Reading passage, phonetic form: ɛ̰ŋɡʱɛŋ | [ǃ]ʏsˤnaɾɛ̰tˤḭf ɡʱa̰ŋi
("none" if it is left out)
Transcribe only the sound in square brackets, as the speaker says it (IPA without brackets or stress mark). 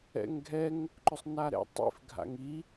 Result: ǃ